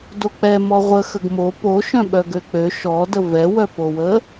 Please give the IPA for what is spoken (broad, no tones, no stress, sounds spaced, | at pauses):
d o k͡p ɛ m ɔ ʁʷ ə x ə ɡ m o p o ʃ œ̃ ɓ œ ɡ ø k͡p ø ʃ ɔ d ə v ɛ w œ p o w ə